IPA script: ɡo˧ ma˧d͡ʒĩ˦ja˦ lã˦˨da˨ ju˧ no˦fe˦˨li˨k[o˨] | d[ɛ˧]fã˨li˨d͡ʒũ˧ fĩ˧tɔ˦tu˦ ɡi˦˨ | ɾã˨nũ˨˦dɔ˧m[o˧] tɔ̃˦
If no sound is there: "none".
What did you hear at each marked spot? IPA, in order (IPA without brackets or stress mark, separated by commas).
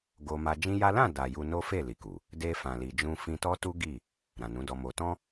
u˨, e˧, o˧